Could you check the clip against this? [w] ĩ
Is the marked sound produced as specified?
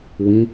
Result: yes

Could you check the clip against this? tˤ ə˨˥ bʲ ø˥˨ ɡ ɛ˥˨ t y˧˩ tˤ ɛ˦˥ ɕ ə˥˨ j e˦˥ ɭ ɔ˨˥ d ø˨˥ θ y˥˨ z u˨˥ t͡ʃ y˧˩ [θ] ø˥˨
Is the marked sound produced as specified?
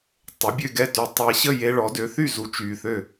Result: yes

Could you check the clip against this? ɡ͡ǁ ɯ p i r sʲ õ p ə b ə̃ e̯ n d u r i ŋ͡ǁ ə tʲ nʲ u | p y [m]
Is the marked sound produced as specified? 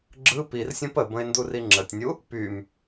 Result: yes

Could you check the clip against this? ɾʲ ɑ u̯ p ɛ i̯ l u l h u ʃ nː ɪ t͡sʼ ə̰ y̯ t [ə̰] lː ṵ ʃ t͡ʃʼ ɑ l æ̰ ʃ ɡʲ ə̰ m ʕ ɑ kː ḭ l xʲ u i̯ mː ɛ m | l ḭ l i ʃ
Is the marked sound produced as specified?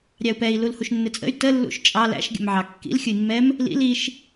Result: no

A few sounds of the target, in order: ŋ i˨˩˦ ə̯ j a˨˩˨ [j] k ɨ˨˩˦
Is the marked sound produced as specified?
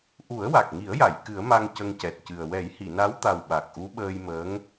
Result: yes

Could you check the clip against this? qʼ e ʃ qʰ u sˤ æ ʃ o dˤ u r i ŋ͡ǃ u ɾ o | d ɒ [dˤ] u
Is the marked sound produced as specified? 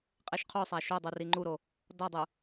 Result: yes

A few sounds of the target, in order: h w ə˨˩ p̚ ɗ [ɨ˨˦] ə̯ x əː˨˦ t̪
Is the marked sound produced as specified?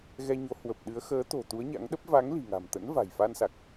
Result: yes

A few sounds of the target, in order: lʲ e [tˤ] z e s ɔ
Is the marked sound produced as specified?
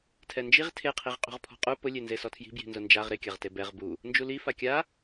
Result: no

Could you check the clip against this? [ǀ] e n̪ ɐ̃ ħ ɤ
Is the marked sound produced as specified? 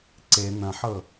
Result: yes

